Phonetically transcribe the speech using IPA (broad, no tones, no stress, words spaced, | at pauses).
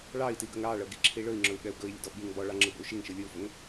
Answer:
ɭɑi̯tiɡəŋ ɾɑɭɤɡiǁʰi ɭɵi̯ŋ͡ǁɵu̯ɠɛu̯ ɡɵi̯lʲə̰dɔ ɓiŋ bɔɭɑŋ͡ǁɯbə̰u̯ ʃiŋʃɯ lʲɯu̯fəŋ